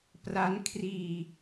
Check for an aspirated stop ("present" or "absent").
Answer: present